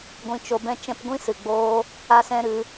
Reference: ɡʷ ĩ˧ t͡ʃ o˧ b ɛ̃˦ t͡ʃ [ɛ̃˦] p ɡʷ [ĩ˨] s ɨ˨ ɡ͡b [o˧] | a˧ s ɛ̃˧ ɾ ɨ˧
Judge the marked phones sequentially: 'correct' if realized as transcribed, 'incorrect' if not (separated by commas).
correct, incorrect, incorrect